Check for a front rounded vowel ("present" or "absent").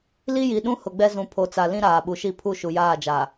absent